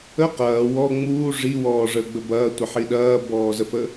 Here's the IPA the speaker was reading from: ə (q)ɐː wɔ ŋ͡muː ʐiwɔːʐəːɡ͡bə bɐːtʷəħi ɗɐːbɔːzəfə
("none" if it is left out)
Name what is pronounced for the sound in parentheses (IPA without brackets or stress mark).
q